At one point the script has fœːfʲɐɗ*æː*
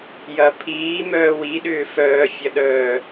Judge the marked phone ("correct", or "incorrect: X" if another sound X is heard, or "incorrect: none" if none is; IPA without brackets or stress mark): incorrect: œː